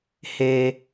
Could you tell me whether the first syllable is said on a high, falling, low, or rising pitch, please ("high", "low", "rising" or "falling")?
low